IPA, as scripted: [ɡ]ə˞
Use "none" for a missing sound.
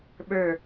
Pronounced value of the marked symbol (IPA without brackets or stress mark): ɓ